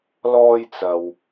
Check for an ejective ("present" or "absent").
absent